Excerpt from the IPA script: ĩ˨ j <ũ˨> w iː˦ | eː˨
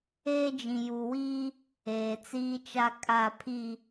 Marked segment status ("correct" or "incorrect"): incorrect